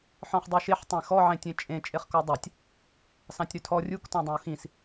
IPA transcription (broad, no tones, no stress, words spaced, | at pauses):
ħɔ̃χdˤiʃeħ tˤẽxɔ ʕẽtʲẽt͡ʃʼẽ t͡ʃʼeχkɔdˤɛtʲ | sɑ̃tʲɾʉtʰɔ rʲuk tɔ̃dˤẽu̯xĩs